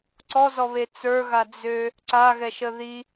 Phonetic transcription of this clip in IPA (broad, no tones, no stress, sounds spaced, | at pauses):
ǀ ɔ z ɔ β e t͡s ə˞ ɣ a d͡z ø | ǀ a ɣ ɛ ʃ ə ð i